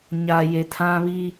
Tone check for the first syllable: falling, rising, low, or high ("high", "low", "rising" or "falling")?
low